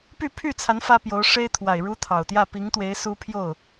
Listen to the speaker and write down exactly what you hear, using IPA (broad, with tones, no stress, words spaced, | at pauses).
py˥˧pʰy˥˩t͡sʰa˧˥n fä˥pjo˧˥ʊ̯ ʂe˥ɪ̯t̪ʰwa˨˩ɪ̯ ɻu˥t̪ʰɑ˨˩ʊ̯ t̪jä˥˩pi˧˥ŋt̪we˧˥ɪ̯ su˥ pʰjo˥˩ʊ̯